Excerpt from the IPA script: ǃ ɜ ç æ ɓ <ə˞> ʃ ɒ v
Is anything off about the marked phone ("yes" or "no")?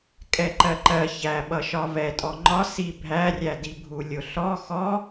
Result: yes